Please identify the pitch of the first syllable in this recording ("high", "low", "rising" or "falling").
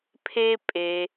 high